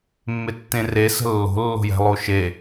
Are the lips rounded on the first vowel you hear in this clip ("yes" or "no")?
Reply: no